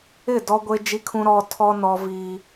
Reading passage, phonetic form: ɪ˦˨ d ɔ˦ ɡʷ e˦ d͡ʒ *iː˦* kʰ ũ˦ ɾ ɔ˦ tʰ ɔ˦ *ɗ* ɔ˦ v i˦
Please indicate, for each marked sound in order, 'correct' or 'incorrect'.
incorrect, incorrect

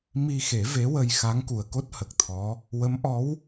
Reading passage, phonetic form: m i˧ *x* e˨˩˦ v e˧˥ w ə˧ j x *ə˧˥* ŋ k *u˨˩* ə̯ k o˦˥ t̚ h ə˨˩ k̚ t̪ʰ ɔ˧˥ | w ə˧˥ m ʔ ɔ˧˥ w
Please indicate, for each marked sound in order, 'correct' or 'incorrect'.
correct, incorrect, correct

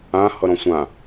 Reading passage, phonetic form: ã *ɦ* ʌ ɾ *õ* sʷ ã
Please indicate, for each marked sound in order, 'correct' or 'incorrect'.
incorrect, incorrect

